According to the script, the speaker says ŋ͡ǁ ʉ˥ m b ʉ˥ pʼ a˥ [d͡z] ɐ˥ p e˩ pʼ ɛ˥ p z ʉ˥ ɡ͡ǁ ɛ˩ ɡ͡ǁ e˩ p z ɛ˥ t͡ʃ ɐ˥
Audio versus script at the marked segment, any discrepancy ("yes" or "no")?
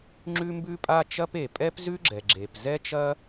yes